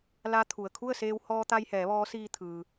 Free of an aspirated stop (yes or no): no